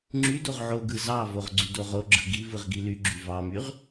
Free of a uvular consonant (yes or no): no